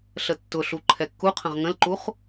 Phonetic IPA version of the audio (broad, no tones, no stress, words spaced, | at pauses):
ɬətːʊɬu ǃʰɛkːuqʰə̃ʁ ŋə̃lǃuχ